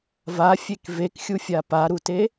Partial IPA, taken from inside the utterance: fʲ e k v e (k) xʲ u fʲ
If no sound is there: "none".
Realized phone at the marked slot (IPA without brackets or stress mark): k